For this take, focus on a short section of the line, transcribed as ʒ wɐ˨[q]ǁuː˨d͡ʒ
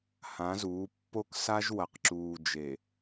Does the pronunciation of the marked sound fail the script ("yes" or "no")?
no